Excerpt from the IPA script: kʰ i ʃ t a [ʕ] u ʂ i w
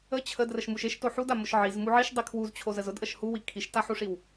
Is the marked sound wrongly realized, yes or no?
yes